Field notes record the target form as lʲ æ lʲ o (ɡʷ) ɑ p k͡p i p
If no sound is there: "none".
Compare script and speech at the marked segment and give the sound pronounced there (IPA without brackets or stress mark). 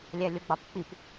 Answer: ɡ͡b